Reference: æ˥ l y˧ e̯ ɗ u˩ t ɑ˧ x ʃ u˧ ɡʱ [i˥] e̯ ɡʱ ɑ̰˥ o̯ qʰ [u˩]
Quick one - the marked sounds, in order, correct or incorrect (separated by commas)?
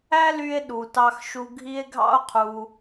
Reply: correct, correct